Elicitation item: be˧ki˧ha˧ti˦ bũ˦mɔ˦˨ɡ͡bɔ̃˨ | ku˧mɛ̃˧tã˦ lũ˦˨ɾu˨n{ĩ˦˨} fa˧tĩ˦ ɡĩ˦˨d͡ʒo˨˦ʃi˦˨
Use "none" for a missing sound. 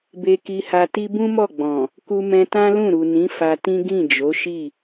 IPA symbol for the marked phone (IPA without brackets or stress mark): ĩ˨˦